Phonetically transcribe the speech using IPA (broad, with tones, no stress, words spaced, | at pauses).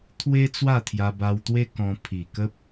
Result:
t̪ʰwe˦ t͡swa˥˧t̪ʰja˧ba˧wt̪we˦ kɔ̃˧ pʰi˨˩kə˦p̚